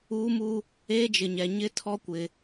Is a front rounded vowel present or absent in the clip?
absent